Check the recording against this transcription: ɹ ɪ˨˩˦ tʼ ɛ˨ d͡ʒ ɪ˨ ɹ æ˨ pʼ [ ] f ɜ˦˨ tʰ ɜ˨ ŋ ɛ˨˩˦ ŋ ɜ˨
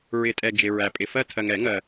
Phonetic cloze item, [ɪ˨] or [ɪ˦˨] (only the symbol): ɪ˨